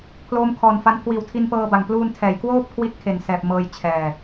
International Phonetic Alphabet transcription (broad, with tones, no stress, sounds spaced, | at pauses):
pʰ l oː˦˥ m kʰ ɔː˨˩ n f a˦˥ n kʰ w iː˨˩ w tʰ i˧ n p ɤː˧ b a˨˩ ŋ p l uː˧ n tʰ ɛː˩˦ j k w oː˥˩ p̚ kʰ w i˥˩ t̚ kʰ e˨˩ n s ɛː˨˩ p̚ m ɤː˧ j t͡ɕʰ ɛː˨˩